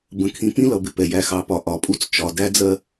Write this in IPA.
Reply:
b ə̃˨ kʰ ĩ˨ p ĩ˦ l ʌ˨ b ɪ˨ p ɛ˨ j æ˨ x ɑ˨ p ɒ˨ ʔ ɒ˨˦ pʼ u˦ t͡s t͡ʃ ɒ˨ d æ˦ d͡z ɜ˦

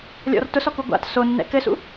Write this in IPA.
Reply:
lʲ ɔ̰ r t ʊ s ɔ k u ɡʷ a̰ t s o nː ɛ̰ k ɘ s ṵ

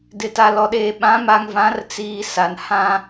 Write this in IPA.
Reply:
d ɪ˨ t a˨ l ɔ˨ ɗ eː˨ ɓ ã˨˦ m a˨ ŋ v ã˨˦ r t͡s iː˨ s a˨ n h ã˦

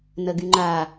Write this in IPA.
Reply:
n ə ɡ y ŋ͡ǃ a

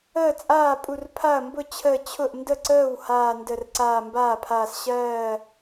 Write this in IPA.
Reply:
əː˥˩ t͡sʼ aː˥˩ pʼ u˧˩ r pʰ a˥˩ ɐ̯ m b ʊ˥˩ t͡ɕʰ əː˧˩ t͡ɕʰ ʊ˥˩ ʔ n d ə˥˩ ǀ əː˥˩ w h aː˧˩ n d ə˧˩ r ǀ aː˧˩ m b aː˥˩ pʰ aː˧˩ s ɕ ɜː˧˩

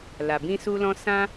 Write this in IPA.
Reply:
l a˨ b ĩ˧ s u˧ l ɔ̃˧ s ã˦

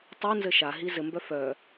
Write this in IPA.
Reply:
tˤ u n z ɘ ʃ a ɦ i z ɘ m b œ f œ

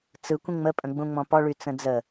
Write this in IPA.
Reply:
t͡s ɯ kʷ ẽ ŋ͡m ə pʼ ə̃ ɡ͡b ũ ŋ͡m ɔ̃ p ɔ ɭ y t͡s ə̃ d͡z ə

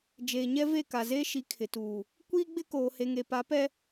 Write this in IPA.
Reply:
d͡ʒ eː˨ ɲ ɛ˦ v e˦˨ k a˨ z eː˦ ʃ i˨˦ kʰ ɪ˨ t uː˨ | kʷ iː˦ ɡ͡b ɪ˦ k oː˨ h e˨ ŋ e˨ p a˨˦ p ɛ˦

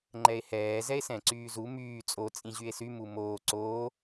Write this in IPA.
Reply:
ŋ͡ǃ ɛ e̯ h ɛː z ɛ e̯ s ɛ̃ ǀ yː z u m yː t͡sʼ o t͡sʼ ĩ ʑ y e̯ s y m u m oː ǀ o

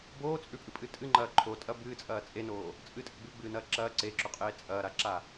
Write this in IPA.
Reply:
b oː t͡sʼ ʉ pʼ ɨ pʼ ɨ tʼ ɨ ŋ͡ǃ ɐː ǃʰ o tʼ ɐ b ɨː t͡sʼ ɐː t͡sʼ e n oː | t͡sʼ ɨ tʼ ɨ ɡ͡b ʉ ɡ͡b ɨː n ɐː ǁ ɐː ǀ e ǁ o qʼ eː t͡sʼ ɐː ɾ a ǁ a

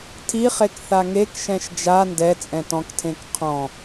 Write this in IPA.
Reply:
tʰ i χ e k θ a ŋ e k ʃ ɛ̃ ʃ d͡ʒ a n d ɛ t͡sʼ ɛ̃ t ɔ̃ k tʰ ẽ k qʰ ɔ̃

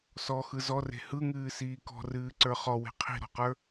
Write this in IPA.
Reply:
s ɔ x ɯ z ɔ r e̤ h ɯ ŋ ɨː s iː k ɔ̤ r ɨː ǀ ə˞ χ ɔ w e̤ qʰ i̤ ɾ ɔ̤ q ə˞

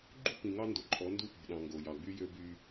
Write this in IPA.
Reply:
ɡ͡ǃ ṳ˦ p ĩ˨ ŋ ɑ˦ n d o˨ ǃʼ ɔ˨˦ n d u˦˨ p o̤˨ ɗ ɑ̃˨ ŋ ɡ o˨ j ɑ˨ ɡ͡b y˦ j ø˦ b y˦

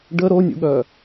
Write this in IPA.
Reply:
ɖ ə ɾ o nʲ ṵ ɠ œ

